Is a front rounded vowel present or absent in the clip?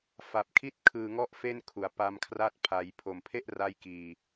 absent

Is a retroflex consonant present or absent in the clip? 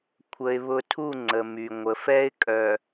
absent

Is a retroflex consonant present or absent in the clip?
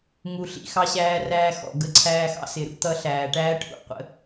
present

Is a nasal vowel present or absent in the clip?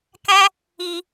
present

